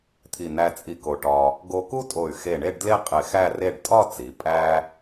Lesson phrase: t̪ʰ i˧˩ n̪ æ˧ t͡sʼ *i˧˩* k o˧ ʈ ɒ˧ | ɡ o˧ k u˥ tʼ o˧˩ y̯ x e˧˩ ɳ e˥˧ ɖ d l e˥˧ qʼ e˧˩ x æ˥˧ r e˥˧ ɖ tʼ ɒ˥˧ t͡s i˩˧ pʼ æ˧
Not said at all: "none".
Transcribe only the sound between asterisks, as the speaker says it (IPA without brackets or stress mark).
i˧